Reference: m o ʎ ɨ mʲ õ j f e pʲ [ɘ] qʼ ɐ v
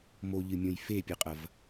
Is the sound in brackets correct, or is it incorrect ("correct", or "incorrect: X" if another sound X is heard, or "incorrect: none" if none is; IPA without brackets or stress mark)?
correct